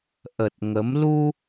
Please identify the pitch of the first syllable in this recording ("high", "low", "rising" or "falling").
low